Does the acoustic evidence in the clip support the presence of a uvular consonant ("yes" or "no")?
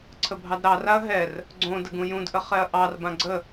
yes